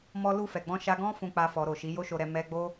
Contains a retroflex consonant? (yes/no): no